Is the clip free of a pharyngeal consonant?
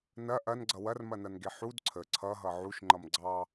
no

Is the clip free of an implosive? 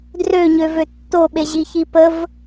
no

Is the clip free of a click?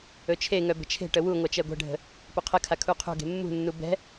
yes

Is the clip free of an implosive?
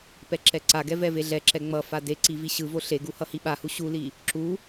no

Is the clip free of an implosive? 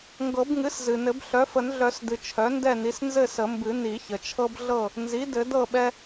no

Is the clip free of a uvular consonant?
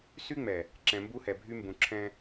yes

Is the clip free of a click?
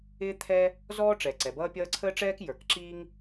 no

